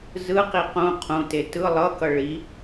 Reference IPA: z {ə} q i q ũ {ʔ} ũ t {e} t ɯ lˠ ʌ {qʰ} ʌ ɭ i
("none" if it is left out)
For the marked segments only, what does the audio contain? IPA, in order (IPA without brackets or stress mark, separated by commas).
ɯ, qʰ, e, k